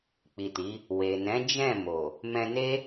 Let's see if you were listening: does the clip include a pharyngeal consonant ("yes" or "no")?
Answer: no